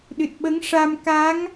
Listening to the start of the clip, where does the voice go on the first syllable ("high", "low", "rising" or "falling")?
low